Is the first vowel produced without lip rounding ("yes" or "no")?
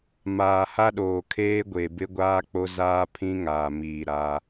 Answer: yes